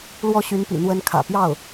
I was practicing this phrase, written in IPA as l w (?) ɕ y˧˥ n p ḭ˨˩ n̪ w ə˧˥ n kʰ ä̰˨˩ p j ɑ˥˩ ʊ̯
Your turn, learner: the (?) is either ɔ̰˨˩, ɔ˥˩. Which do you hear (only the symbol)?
ɔ˥˩